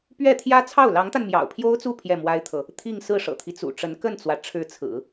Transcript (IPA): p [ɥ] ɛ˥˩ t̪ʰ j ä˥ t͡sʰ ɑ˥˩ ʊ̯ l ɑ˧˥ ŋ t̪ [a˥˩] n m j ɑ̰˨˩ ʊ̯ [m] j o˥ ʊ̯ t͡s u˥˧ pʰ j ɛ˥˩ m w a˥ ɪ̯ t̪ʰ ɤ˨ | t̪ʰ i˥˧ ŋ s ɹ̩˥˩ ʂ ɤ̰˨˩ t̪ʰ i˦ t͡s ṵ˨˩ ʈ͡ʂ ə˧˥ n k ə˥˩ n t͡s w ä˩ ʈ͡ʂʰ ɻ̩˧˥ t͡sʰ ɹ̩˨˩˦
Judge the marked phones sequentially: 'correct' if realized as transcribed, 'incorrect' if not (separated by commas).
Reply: correct, incorrect, incorrect